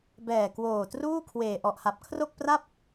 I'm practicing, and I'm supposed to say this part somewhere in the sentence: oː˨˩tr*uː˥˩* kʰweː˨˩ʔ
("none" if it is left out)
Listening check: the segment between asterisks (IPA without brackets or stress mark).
uː˥˩